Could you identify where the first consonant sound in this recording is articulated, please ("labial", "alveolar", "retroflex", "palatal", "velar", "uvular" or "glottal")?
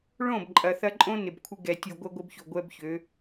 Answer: retroflex